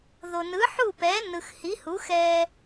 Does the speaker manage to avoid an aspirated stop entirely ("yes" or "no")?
yes